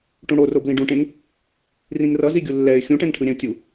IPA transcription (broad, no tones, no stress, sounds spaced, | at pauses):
ʈ ũ ɽ o r o b l ĩ ɖ ũ ʈ ẽ ŋ | r ĩ ŋ r ʌ z i ɡʲ u lː ɛ ɪ̯ xʲ ũ ʈ ɛ̃ ŋ ʈʰ ɯ ɾʲ ɛ̃ ʊ̯ tʲ u